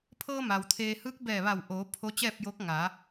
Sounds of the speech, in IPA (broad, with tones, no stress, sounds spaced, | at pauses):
pʰ ɤː˧ m a˩ w t̪ʰ eː˧ h ɯː˧˥ k̚ b ɛː˧˩ ʋ a˧˩ w ʔ oː˩˧ pʰ o˧˥ t͡ɕ ɛː˥˨ p̚ j oː˧˥ k̚ ŋ a˩˧